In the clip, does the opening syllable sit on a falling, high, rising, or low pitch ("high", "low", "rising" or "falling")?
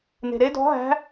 low